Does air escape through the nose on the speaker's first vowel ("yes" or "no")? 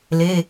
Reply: no